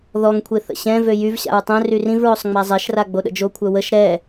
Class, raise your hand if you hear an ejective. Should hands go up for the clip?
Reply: no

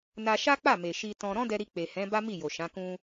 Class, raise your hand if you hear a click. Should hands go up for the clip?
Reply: no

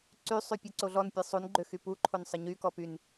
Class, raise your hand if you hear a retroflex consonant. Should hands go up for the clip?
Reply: no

